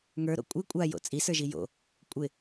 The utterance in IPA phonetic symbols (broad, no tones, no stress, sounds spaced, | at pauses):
ŋ ə˞ ɾ o̰ kʷʼ ɪ kʷʼ a j o̰ t͡sʼ i s ə˞ ʒ i j o̰ | kʷʼ ɪ